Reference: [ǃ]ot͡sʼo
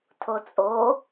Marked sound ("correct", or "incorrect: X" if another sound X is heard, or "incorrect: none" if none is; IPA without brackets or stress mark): incorrect: tʰ